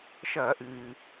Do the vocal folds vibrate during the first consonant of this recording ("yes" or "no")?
no